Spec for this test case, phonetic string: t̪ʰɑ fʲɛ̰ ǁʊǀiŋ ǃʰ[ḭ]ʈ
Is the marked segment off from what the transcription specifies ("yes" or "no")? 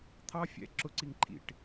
no